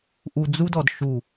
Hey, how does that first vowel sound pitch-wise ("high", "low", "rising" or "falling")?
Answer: low